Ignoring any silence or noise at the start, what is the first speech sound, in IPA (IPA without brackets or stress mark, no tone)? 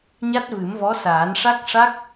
ɲ